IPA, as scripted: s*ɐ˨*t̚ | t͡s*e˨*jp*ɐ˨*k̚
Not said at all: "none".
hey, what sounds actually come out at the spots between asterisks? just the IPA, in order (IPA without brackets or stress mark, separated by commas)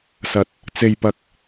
ɐ˨, e˨, ɐ˨